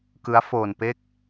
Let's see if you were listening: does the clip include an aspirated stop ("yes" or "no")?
no